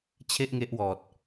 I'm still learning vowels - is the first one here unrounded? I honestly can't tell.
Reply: yes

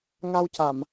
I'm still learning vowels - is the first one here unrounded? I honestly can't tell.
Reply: yes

